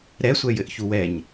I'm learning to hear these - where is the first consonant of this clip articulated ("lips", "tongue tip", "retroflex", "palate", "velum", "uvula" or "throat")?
tongue tip